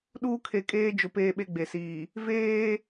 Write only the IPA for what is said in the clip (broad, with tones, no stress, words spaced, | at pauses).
ɗuː˦kʰe˨kʼeː˦d͡ʒʊ˨ peː˦ɓe˦ɡ͡be˨siː˨ | veː˦